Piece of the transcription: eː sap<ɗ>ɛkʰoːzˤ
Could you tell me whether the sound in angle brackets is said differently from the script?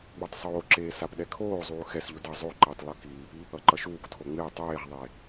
no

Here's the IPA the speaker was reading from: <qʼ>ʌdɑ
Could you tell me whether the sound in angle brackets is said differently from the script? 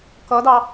yes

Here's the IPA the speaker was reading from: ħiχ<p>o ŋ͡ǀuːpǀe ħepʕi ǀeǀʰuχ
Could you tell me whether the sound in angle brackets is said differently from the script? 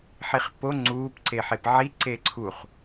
no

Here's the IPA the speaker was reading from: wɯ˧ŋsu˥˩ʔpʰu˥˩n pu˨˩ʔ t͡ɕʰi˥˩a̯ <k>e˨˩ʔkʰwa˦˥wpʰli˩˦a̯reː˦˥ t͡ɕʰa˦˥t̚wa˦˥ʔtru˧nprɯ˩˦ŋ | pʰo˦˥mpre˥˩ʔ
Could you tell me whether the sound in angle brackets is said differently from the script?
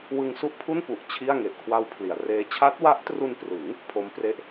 yes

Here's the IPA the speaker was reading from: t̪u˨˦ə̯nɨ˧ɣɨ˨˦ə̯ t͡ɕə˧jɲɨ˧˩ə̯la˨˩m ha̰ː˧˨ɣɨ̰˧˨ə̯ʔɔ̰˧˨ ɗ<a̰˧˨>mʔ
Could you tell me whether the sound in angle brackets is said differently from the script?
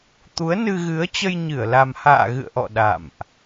no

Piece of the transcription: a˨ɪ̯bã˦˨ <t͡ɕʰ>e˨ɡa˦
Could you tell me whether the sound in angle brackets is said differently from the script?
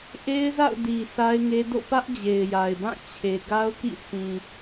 no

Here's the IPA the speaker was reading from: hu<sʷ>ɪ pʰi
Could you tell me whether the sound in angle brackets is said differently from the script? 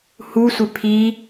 no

